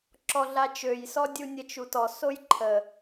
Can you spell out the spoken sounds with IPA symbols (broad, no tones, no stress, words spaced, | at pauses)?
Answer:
ǁɔɮat͡ʃøjsɔ dʲunʲət͡ʃutɔ sojǃʰə